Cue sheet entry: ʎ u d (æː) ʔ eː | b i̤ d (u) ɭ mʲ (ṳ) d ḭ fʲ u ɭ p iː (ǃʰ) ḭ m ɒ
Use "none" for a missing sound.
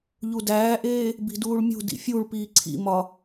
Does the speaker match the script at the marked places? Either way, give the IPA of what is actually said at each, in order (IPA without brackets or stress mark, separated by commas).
æː, uː, ṳ, ǀʰ